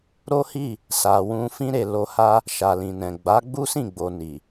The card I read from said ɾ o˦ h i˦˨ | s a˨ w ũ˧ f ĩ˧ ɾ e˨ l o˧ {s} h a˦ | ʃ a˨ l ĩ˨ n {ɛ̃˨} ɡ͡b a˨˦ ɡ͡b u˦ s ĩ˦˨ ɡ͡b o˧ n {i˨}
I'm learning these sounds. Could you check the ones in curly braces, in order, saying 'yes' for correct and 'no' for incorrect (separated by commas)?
no, yes, yes